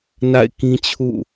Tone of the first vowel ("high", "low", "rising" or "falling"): falling